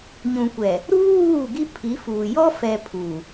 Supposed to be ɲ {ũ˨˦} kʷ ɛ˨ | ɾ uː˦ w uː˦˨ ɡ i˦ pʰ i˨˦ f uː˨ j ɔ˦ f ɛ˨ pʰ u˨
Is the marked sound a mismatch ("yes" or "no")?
yes